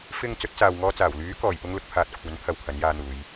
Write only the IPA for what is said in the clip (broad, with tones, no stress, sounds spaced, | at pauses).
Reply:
f ɪ˨ ŋ t͡s ɵ˨˥ t̚ t͡s aː˨ w ŋ ɔː˧ t͡s aː˨˩ w l yː˨˥ k ɔː˨˩ j p ʊ˥ ŋ l ʊ˨˥ k̚ pʰ aː˧ t̚ kʷʰ ɐ˨˥ n pʰ ɐ˧ w kʰ ɐ˨˥ n j aː˧ n̪ uː˨˧ j